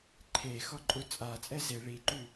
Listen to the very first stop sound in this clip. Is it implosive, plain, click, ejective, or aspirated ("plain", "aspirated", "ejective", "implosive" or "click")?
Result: click